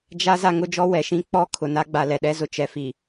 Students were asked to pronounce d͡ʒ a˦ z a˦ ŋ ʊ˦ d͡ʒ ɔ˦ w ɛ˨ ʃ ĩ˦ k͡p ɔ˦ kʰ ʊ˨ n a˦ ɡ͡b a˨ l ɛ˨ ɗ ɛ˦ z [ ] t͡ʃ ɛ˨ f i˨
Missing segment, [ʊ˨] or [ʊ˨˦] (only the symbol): ʊ˨